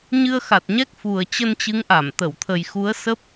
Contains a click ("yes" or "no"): no